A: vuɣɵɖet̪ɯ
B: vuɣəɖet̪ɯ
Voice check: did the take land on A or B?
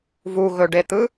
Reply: A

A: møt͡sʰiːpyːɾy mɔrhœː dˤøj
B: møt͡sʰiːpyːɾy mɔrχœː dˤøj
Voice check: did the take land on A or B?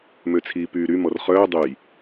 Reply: B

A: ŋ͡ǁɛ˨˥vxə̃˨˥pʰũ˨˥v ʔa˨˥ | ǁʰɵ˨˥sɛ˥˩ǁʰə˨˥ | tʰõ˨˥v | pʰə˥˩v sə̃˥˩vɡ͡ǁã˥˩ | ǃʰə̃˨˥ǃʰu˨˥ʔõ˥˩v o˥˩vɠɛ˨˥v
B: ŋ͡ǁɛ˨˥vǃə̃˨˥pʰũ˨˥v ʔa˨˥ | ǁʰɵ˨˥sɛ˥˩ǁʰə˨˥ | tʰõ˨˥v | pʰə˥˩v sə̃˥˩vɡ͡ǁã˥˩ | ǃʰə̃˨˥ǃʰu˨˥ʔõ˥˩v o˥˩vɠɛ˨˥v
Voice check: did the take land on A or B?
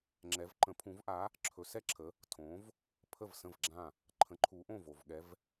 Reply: B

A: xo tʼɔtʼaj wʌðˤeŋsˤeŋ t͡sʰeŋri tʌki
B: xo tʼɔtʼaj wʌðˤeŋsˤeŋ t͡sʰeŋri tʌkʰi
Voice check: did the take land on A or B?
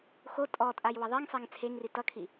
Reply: B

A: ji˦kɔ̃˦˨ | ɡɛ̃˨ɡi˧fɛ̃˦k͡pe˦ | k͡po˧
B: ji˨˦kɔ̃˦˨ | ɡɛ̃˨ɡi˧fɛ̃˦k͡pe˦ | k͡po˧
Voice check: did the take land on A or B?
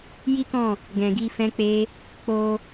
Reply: A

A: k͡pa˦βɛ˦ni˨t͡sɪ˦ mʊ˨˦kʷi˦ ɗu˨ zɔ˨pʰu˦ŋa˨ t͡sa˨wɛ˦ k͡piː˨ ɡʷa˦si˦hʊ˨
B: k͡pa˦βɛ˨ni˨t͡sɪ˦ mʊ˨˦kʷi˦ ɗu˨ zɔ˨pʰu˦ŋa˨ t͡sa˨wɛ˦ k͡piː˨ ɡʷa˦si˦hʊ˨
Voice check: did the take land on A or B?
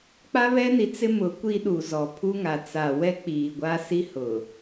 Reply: A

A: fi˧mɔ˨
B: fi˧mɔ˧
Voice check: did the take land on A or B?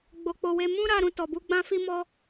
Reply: B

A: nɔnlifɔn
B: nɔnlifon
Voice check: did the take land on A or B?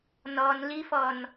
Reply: A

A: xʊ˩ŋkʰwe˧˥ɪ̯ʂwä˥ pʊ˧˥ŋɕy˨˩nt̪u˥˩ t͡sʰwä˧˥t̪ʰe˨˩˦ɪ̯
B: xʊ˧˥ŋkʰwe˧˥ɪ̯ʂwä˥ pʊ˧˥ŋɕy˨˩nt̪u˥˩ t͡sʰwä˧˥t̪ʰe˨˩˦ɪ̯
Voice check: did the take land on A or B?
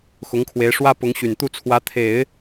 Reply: B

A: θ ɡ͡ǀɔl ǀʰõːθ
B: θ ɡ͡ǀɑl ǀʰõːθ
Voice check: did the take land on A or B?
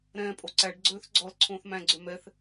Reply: A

